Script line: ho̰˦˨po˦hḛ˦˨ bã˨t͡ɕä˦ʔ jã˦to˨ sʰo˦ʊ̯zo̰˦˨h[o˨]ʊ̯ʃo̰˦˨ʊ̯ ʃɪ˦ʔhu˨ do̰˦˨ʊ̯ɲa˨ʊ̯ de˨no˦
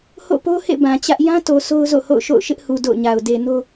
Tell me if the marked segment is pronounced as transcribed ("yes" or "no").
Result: no